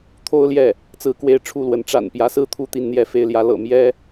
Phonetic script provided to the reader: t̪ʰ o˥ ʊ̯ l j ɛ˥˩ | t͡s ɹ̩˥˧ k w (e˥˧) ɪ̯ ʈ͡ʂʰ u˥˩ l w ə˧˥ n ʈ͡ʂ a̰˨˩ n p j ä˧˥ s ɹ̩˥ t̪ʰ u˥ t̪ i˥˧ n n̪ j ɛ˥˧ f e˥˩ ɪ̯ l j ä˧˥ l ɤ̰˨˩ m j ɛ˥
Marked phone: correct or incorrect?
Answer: correct